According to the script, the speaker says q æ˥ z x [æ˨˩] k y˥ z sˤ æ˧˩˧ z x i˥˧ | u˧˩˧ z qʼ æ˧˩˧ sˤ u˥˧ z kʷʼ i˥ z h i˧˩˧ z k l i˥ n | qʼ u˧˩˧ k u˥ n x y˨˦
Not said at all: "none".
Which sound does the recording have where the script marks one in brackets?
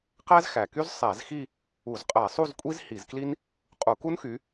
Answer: æ˨˩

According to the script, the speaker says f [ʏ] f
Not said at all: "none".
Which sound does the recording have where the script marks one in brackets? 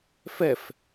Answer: ɛ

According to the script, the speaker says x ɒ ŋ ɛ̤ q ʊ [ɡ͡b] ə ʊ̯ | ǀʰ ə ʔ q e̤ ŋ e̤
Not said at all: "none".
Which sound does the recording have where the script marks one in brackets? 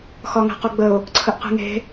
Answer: ɡ͡b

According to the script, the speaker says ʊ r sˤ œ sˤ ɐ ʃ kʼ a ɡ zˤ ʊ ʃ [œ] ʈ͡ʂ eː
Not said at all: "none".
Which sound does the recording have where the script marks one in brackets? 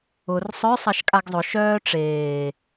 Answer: œː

